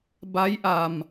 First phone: b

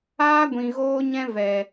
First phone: aː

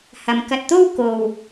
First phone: h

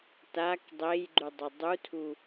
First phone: t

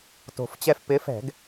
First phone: t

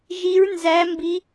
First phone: ʒ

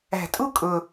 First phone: æ̤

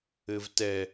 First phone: ɘ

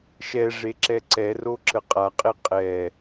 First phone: ʃ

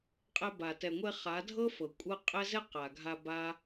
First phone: qʼ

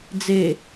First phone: d͡z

